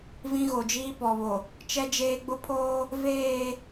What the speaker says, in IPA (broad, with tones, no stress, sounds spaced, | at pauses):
v ĩ˦ ɣ o˨ d͡ʒ iː˦ p ɔ˨ β o˨ | t͡ʃ ɛ˦ d͡ʒ eː˦ ɡ͡b ʊ˦ pʰ oː˦ | v eː˦˨